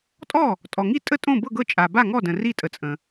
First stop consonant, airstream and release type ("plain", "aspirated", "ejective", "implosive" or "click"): ejective